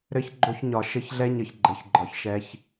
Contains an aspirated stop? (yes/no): no